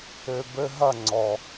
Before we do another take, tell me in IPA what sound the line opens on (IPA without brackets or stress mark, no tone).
ø